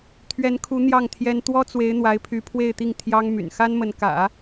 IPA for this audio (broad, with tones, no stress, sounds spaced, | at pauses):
t̪ʰ ɥ ɛ˧˥ n kʰ u˧˥ n̪ j ɑ˥˩ ŋ t̪ʰ j ɛ˥ n t̪ w ɔ˥ t͡s w e˧˥ ɪ̯ n̪ w a˧˥ ɪ̯ pʰ y˧˥ pʰ w e˥˧ ɪ̯ t̪ i˥˩ ŋ t̪ʰ j ɑ˥ ŋ m y̰˨˩ n x a˥ n m ə˧˥ n k ä̰˨˩˦